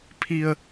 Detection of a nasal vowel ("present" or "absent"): absent